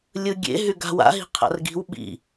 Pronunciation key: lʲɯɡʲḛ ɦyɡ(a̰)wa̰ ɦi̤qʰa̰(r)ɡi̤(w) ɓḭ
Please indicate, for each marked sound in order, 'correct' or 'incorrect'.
incorrect, correct, correct

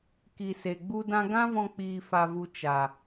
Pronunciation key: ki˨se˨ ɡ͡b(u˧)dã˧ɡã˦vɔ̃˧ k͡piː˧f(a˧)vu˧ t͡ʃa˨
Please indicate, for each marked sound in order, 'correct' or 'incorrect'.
correct, correct

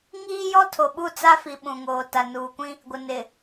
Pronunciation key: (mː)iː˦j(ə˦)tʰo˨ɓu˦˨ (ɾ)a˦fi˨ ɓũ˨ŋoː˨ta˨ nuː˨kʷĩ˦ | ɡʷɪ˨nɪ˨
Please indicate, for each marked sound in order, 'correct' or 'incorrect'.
incorrect, incorrect, incorrect

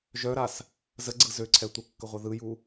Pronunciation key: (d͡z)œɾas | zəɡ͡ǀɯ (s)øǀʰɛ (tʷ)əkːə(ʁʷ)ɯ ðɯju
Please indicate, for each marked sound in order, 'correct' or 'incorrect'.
incorrect, incorrect, correct, correct

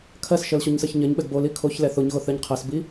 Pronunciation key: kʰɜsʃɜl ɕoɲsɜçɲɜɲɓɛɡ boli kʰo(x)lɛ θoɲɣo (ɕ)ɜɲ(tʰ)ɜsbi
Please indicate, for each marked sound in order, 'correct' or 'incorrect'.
incorrect, incorrect, incorrect

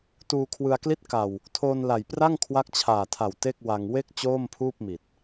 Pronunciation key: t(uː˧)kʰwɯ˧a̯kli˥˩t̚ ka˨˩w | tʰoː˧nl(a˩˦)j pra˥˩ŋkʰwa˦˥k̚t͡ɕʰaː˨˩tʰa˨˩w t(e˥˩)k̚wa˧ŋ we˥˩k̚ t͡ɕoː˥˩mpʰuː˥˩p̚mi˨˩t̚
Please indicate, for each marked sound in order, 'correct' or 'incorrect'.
correct, incorrect, correct

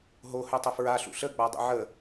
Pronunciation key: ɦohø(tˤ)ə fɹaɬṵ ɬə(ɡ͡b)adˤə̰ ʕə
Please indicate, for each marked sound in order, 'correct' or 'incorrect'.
correct, correct

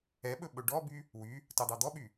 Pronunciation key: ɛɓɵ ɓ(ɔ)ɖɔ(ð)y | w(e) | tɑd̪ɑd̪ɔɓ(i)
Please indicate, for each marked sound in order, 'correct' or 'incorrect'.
incorrect, incorrect, incorrect, incorrect

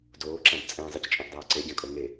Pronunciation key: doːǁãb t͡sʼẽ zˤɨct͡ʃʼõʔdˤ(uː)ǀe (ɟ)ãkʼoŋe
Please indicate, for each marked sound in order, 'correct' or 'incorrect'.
incorrect, correct

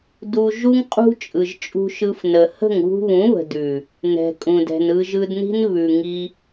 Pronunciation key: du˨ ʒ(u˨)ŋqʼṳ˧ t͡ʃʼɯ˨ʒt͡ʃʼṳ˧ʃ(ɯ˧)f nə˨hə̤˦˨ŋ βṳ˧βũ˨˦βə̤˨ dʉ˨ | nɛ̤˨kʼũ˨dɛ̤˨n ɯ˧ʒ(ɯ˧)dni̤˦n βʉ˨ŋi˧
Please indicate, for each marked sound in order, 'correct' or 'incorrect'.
incorrect, correct, correct

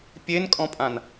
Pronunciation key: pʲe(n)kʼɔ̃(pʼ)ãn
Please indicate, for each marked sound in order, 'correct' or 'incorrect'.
correct, correct

